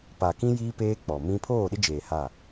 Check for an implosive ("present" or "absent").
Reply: present